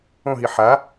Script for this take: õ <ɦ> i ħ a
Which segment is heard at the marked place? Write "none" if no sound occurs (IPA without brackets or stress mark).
ɦ